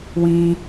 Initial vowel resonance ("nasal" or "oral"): nasal